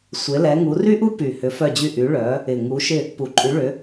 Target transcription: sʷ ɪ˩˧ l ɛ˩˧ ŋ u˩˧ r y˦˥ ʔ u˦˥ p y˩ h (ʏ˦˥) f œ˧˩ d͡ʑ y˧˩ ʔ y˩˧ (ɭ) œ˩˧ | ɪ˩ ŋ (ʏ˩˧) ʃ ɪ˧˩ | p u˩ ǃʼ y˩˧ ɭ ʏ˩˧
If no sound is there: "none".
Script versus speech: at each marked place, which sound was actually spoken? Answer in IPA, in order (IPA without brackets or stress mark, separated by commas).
ʏ˩˧, ɭ, u˩˧